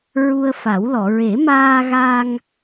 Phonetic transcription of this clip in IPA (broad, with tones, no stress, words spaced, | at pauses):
ɹu˧ə̯fa˨˩˦wlɔ˨˩˨ ɹe˨˩˦maː˧ɣa˧ŋ